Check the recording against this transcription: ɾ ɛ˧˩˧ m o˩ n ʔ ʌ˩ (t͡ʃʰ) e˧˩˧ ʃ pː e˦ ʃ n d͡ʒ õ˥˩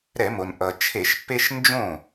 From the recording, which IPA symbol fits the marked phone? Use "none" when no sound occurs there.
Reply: t͡ʃʰ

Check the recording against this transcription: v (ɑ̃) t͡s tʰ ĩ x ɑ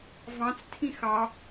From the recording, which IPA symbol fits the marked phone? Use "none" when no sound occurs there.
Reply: ɑ̃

